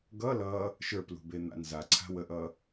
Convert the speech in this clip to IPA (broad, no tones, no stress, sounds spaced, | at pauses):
ɡ ʌ l ʌ | ʃ ə˞ p l ṳ b e n̪ a̰ n z a ǀʰ a̤ w ə ʔ ʌ